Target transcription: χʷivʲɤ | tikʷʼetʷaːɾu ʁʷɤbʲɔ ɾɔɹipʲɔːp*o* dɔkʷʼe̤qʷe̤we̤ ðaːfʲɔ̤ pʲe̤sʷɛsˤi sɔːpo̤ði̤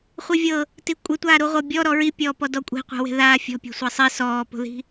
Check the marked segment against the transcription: incorrect: ɔ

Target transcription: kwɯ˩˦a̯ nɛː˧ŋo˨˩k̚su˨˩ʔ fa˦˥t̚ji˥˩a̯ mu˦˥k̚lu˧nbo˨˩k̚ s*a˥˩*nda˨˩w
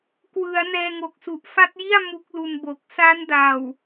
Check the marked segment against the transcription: incorrect: a˦˥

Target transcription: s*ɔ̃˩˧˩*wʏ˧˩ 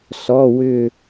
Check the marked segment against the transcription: incorrect: ɔ˩˧˩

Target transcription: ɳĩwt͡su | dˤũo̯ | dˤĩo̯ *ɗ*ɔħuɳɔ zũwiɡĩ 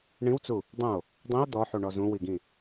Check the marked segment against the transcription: incorrect: d̪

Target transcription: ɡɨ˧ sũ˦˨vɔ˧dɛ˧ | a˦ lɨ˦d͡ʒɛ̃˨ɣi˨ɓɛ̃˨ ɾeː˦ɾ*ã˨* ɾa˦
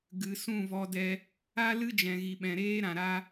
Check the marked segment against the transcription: correct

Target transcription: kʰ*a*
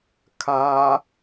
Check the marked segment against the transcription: correct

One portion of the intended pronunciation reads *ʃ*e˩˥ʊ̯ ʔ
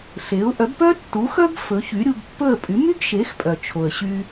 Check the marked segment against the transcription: incorrect: ɬ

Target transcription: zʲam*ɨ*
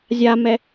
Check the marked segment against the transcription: incorrect: ɛ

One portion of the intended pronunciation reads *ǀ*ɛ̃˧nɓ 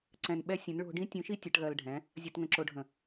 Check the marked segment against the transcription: correct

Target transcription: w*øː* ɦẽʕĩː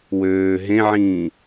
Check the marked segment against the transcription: correct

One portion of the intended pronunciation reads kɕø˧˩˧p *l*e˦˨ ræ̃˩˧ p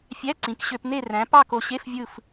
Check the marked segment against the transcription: incorrect: n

